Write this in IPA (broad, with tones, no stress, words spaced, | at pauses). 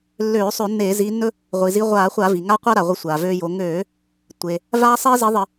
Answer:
lːøː˧˩˧sˤø˧˩˧ nːeː˧˩˧ziː˨˦nːɵ˦ | ʁʷi˩zi˨˦ʁʷaː˧˩˧χʷa˧˩˧ vi˩ ŋa˦ qʷa˦ɾa˩ʁʷə˨˦ sʷaː˩vøː˦jo˨˦ ŋøː˧˩˧ | tʷe˩ | vaː˦sˤiː˦zi˨˦ðˤə˧˩˧